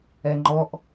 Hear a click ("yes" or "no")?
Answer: yes